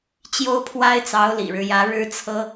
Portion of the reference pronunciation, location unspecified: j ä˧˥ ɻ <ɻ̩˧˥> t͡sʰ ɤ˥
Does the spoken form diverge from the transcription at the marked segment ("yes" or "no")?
yes